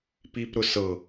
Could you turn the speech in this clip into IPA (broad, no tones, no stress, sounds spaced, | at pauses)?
p i p ɾ ʊ s ɤ